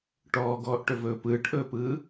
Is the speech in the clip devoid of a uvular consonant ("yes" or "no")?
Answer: yes